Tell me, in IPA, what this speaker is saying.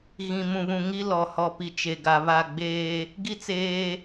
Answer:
ɣ ĩ˨ m ũ˨ β ũ˨ ŋ i˦ l ɔ˨ h ɔ˨ p i˨ t͡ʃ e˨ ɡ a˨ β a˦˨ ɡ͡b eː˦ | ɡ i˦ t͡s eː˦

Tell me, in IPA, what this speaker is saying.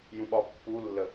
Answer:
j ũ ɓ ɒ pː u lː ə

